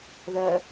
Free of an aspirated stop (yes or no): yes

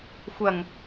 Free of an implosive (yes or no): yes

